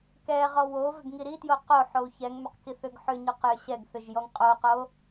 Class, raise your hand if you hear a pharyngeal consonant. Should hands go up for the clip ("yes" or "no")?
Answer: yes